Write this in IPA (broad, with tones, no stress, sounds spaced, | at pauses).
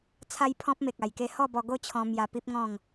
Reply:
t͡sʰ a˦ j pʰ ɔ̃˦ p̚ m e˨ k̚ a˨˩ j k e˦ h ɔ˥˧ b ɔ˧ ɡ o˥˧ t͡ɕʰ ɔ̃˧ m j a˧ p i˦ p̚ ŋ ɔ̃˥˧ ŋ